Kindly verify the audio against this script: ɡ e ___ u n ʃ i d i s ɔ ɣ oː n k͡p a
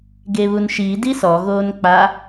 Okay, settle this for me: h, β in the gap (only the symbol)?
β